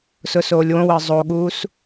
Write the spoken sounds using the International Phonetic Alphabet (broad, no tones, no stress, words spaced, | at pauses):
sʊsoːlʲwõwəː zˤoɠuːs